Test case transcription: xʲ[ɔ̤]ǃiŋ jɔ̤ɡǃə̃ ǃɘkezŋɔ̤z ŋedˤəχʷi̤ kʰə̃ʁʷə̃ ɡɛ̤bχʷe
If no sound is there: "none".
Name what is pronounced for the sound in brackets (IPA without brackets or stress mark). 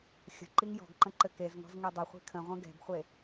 ə̤